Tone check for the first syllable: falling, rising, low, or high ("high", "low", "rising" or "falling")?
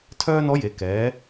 high